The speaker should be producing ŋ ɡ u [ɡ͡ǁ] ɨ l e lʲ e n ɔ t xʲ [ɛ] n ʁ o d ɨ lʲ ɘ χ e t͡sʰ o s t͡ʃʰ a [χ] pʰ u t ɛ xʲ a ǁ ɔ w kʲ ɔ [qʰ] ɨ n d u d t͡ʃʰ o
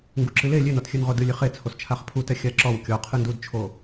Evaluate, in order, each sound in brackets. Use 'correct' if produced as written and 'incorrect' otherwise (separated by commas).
incorrect, incorrect, correct, correct